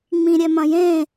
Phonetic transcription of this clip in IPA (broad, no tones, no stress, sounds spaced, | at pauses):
ŋ͡m ĩ ɾʲ ɛ m ɐ̃ j ẽ